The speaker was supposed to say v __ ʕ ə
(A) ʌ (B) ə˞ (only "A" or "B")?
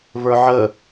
B